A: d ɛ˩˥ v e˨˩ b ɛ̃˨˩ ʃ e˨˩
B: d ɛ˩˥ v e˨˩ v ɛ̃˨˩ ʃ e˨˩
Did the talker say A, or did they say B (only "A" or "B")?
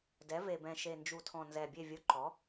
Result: A